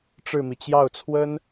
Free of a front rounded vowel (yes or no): yes